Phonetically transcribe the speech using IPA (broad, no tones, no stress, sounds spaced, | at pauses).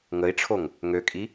ŋ ə i̯ ʈ͡ʂʰ o ŋ | ŋ ø kʼ i